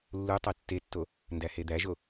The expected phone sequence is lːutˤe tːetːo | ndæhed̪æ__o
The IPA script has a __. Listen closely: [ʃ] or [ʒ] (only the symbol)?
ʒ